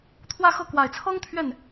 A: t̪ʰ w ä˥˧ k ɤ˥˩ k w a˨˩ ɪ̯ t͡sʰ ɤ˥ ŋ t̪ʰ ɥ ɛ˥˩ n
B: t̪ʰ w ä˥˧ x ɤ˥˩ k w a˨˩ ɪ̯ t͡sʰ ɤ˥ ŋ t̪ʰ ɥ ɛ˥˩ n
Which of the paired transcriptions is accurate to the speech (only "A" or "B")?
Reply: B